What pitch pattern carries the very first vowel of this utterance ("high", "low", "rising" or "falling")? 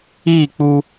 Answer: falling